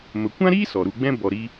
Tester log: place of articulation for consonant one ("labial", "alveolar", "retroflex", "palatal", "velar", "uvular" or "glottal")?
labial